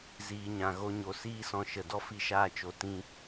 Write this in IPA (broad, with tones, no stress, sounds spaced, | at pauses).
z iː˨ ɲ ã˨ ɣ o˧ ɲ o˨ s iː˦ s ɔ̃˧ ʃ ə˨ d ɔ˦ f i˦˨ ʃ aː˦ t͡ʃ o˦ t ĩ˦